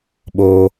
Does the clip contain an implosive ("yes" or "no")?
yes